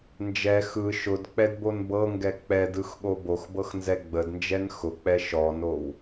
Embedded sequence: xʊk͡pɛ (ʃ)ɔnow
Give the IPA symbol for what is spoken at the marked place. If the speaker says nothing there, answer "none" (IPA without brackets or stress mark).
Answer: ʃ